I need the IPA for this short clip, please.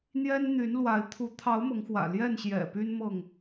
n̪ j ɛ˦ n n̪ y˨˦ n l w a˨˦ ɪ̯ t̪ʰ u˨˦ t̪ʰ ɑ˨˦ ʊ̯ m ɤ˨˦ ŋ x w ä̰˨˩ l j ɛ˥˨ n ɕ j ɛ̰˨˩ p y˦ n m ɤ˥˨ ŋ

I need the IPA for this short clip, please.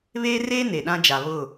β eː˦ r eː˦ n e˨ ɗ ã˦ d͡ʒ a˨ β ʊ˦˨

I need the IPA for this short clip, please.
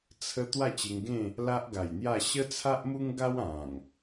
t͡sʰ ə˧ t̪ w a˥˧ t͡ɕ e˧ ŋ ɡ ẽ˥˧ | l a˦ ʔ ɡ a˨˩ j n̪ j a˥˧ ɕ ə˦ t͡sʰ a˦ ʔ m u˦ ŋ ɡ a˦ w ã˨˩ ŋ

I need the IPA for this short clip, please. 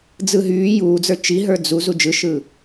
d͡z ɯ ɦ yː j uː d͡z ə˞ t͡ʃ i ɦ ə˞ d͡z u z u d͡ʒ ɯ ʃ ɯ

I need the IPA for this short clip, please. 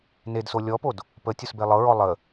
n e d s o lʲ ɔ p o d | p ə tʲ o s b e lˠ ɤ ɹ ɔ lˠ ə

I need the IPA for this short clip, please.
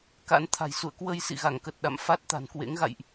k a̰˧˥ n t̪ʰ a̤˨˩ j s ṵ˧˨ ə̯ k w ə˧ j s ḭ˧˨ ɣ a˧˩ ŋ k ə˨˩ t̚ ɗ a̰˧˨ m f a˦˥ t̚ t̪ a̤˨˩ n k w ḛ˧˥ ŋ ɣ a̰˧˨ j ʔ

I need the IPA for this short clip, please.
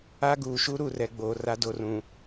a˦ ɡ uː˨ ʃ u˦ ɾ u˨ r ɛ˨ ɡ͡b oː˨ r a˦ d o˦˨ r ũ˨

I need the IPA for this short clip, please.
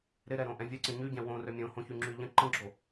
ɾ ɪ ɾ ɛ ɾ õ ʔ ɛ̃ vʲ ə ǀ ə̃ ɲ y ɟ ɛ̃ w õ r ø mʲ õ h õ ç y ŋ͡ǁ y ʎ ə̃ ǃ ə̃ ɡ͡ǁ o

